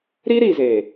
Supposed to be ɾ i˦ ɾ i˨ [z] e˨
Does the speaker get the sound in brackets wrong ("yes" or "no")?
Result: no